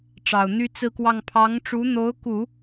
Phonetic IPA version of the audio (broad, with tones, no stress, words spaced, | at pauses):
ʈ͡ʂɑ˨˩ʊ̯n̪y˥ t͡sɹ̩˥˧kwɑ˥˩ŋ pʰɑ˧˥ŋʈ͡ʂu˧˥n̪o˧˥ʊ̯ku˨˩˦